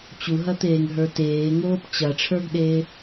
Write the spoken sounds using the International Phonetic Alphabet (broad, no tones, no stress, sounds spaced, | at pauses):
t͡ɕ u ɦ ɐ t̪ eː ŋ ɦ ə˞ t eː ŋ oː p t͡ɕ ɐ ʈ͡ʂʰ ə˞ ɡ ɗ eː